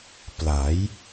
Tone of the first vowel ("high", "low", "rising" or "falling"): rising